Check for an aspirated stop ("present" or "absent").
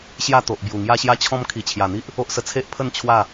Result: present